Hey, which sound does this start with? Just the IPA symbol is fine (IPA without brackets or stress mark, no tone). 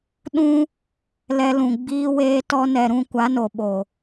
ɗ